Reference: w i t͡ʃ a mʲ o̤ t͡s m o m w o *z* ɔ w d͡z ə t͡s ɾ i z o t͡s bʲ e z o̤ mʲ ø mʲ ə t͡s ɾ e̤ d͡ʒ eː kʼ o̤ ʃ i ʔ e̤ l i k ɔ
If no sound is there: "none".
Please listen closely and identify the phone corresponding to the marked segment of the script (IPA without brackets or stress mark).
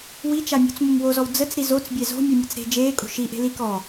z